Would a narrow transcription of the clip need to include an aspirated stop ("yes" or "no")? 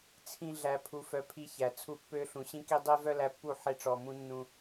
yes